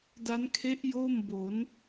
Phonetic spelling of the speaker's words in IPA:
d a˦˥ n kʰ e˦˥ ʔ j oː˥˩ m b o˩˦ n

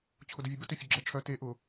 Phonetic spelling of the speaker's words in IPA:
t͡ɕʰ ʊ d ʊ vʲ ə b ə t ʏ fʲ ʊ ɡ͡ǁ ɛ ʈ͡ʂʰ œ t e ʔ ʊ

